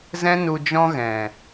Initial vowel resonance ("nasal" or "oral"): nasal